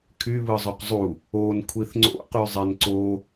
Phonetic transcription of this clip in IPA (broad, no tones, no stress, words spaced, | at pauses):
kʰyβɯzˤoq zˤu | onkʷʰiθ ŋ͡ǀo̰qyzˤen ǀo